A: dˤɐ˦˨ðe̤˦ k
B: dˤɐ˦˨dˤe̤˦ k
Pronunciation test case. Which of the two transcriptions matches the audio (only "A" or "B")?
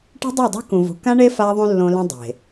B